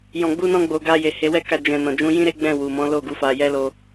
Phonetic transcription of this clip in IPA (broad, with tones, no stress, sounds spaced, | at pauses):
j ɔ̃˨ ɡ͡b u˧ n ɔ̃˧ ɡ͡b o˨ ɡ a˧ j e˨ h e˨˦ w ɛ˦ k a˧ d͡ʒ ɛ̃˨ n ɔ̃˨ d͡ʒ ũ˨˦ j ĩ˦ ɾ e˦ ɡ͡b ɛ̃˦˨ w u˨ m ɔ̃˨˦ l o˦˨ ɡ u˨˦ f a˧ j ɛ˦ l o˧